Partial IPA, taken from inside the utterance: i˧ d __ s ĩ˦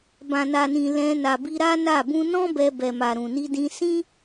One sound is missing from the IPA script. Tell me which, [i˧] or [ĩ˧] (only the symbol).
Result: ĩ˧